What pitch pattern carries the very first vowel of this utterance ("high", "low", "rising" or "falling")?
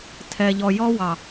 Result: low